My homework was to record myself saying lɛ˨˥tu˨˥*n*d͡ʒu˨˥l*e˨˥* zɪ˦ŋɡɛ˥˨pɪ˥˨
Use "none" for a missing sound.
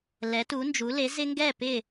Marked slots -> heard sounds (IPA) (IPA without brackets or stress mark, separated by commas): n, e˨˥